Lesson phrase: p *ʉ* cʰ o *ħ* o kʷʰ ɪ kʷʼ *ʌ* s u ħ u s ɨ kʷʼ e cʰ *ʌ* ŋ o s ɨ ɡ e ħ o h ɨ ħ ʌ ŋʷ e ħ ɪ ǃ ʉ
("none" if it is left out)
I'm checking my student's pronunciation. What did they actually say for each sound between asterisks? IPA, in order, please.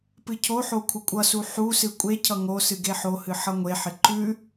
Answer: ɨ, ħ, ʌ, ʌ

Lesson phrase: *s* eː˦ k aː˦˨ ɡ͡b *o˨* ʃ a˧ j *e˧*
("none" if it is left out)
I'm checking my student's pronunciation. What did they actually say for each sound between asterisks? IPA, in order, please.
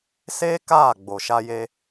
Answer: s, o˨, e˧

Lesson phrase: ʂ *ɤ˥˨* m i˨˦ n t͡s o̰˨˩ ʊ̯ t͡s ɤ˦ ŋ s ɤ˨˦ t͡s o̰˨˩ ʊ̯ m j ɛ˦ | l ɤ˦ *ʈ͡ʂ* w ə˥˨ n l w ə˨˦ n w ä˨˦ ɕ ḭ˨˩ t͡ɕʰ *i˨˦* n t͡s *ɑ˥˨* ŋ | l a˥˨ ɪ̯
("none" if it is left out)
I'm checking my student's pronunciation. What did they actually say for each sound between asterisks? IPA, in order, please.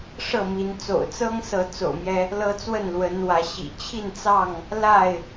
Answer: ɤ˥˨, t͡s, i˥˨, ɑ˥˨

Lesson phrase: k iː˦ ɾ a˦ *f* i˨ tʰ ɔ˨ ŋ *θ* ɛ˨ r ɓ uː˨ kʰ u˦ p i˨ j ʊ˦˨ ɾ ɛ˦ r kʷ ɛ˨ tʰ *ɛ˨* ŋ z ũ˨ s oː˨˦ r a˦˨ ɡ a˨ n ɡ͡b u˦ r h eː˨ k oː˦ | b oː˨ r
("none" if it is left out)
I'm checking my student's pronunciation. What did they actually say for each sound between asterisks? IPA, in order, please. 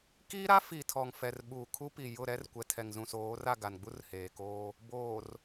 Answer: f, f, ɛ˨

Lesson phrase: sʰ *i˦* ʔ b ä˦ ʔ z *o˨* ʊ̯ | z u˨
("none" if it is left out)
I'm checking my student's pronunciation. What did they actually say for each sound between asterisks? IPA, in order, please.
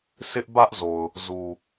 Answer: ɪ˦, o˨

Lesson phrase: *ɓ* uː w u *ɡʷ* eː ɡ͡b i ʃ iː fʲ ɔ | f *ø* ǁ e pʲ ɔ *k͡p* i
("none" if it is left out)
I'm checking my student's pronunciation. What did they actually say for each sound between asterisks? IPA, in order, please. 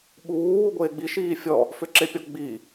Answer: ɓ, ɡʷ, ø, ɡ͡b

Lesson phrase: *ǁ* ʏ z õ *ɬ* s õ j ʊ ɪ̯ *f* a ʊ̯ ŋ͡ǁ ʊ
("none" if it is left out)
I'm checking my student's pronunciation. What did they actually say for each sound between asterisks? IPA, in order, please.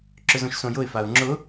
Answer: ǁ, ʃ, f

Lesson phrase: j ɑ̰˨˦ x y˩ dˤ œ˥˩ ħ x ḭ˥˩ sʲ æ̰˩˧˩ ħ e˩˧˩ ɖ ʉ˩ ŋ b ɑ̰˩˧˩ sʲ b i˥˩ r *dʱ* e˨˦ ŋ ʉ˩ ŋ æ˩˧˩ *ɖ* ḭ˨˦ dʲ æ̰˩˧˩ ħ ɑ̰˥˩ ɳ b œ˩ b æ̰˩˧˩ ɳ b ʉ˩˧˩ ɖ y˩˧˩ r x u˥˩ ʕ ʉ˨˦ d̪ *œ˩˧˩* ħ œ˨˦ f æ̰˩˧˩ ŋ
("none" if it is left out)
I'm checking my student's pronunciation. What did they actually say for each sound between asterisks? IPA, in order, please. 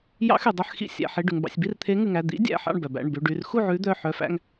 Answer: t̪ʰ, d̪, œ˩˧˩

